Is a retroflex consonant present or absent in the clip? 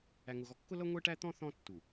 present